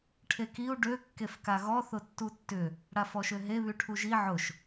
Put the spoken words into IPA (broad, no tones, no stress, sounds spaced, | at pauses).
ʈʰ e k i u̯ ɖ ø kː e f k a ɣ ɔ θ ʊ tː u tː ʏ | ɽ a f ɔ ʃ ø ɦ e β y ʈʰ u ʒ i ʕ ʊ ʃ